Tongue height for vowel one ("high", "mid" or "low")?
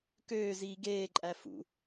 mid